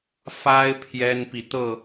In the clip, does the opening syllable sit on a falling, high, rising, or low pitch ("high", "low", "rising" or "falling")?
high